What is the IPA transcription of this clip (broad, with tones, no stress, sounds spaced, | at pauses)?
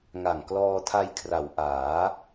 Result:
ŋ a˨˩ ŋ k l ɔː˧ tʰ a˧ j kʰ r a˩˦ w ʔ aː˩˦